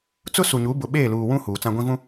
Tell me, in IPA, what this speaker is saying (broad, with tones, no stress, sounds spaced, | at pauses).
t͡s ʊ˦ s u˨ ɲ u˨˦ b ʊ˨ ɓ eː˦˨ l uː˨ w ũ˦ h uː˨ t͡s ã˦ ɡʷ ĩ˦ v ũ˦